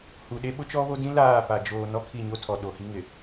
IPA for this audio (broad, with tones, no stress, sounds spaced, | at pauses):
h u˨ ɗ e˦ ɓ ʊ˦ t͡ʃ ɔ˦ β o˦ d ĩ˦ l aː˦˨ p a˨ d͡ʒ oː˨ n ɔ˦ kʰ i˦˨ ɲ o˦ tʰ ɔ˨ ɗ o˨ h i˦ ŋ ɪ˨